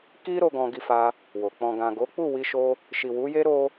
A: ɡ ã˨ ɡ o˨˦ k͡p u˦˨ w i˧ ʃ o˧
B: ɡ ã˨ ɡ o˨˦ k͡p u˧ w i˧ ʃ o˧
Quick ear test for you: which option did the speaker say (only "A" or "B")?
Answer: A